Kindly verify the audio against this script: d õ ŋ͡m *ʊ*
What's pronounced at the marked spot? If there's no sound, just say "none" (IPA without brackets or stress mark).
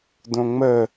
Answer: ə